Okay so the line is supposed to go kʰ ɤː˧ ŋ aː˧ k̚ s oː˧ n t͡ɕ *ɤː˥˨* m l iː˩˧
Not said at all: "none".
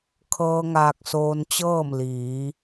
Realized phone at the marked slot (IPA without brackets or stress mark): ɤː˥˨